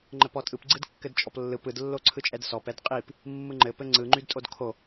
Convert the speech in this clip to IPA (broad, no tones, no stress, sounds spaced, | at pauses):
ŋ͡ǃ ɘ p ɔ tʼ ɯ p ɡ͡ǀ ɯ d kː ɘ d t͡ʃʼ ɔ p lː ɯ p ɯ d lː o ǀʰ ɯ t͡ʃʼ ɛ d s ɔ p ɛ d qʼ i p | mː ɯ ŋ͡ǃ ɘ p ɘ ŋ͡ǀ ɯ ŋ͡ǃ y d tʼ o d kʰ o